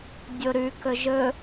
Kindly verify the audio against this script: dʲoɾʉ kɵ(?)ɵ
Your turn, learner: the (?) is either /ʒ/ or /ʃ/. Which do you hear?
ʒ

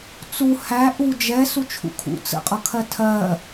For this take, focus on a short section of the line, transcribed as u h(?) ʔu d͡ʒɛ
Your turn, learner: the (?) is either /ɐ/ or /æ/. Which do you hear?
æ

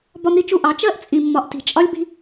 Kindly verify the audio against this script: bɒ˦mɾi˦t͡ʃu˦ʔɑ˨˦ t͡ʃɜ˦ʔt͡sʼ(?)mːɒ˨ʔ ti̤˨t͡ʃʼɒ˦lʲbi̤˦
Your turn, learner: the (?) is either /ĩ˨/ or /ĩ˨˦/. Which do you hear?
ĩ˨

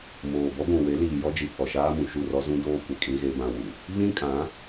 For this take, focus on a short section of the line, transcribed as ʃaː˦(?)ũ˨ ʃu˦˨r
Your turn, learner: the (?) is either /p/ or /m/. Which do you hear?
m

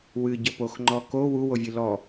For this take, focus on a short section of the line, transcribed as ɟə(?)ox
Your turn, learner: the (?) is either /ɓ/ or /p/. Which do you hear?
p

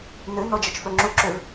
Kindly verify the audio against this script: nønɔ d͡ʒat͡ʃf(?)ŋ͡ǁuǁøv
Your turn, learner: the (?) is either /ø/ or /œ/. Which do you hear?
œ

